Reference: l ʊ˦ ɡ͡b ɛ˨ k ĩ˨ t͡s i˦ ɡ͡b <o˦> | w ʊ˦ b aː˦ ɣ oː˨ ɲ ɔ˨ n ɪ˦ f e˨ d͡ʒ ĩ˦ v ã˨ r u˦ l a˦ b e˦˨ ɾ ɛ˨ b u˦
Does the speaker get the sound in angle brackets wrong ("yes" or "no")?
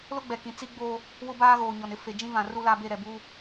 no